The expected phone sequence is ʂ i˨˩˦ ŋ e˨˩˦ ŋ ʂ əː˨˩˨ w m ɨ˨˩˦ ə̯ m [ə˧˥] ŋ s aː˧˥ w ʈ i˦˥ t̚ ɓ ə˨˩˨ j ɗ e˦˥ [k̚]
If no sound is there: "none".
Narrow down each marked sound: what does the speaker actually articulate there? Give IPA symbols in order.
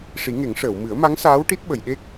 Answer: a˧˥, k̚

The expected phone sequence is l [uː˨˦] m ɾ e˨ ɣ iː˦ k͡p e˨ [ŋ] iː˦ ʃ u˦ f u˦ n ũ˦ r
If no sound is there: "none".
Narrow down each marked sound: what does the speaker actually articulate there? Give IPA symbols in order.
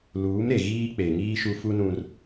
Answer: uː˨˦, ŋ

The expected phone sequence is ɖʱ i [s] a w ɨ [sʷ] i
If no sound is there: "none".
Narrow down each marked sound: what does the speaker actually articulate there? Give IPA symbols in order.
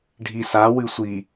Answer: s, sʷ

